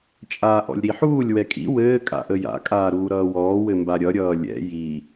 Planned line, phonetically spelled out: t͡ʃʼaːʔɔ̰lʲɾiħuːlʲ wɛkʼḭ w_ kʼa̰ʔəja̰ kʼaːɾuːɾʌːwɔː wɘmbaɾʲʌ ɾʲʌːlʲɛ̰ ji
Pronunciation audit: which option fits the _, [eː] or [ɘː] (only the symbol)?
ɘː